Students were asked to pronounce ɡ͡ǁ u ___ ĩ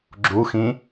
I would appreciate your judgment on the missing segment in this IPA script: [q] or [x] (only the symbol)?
x